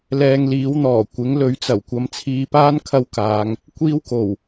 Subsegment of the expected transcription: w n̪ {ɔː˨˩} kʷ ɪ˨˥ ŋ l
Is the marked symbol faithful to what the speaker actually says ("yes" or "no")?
yes